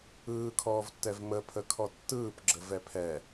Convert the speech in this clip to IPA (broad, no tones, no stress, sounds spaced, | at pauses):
ɯː kʰ ɔː v tː ɛ v m ə pʰ ə kʰ ɔ tː ɯː p ɡ͡ǁ ə v ɛ pʰ ɛ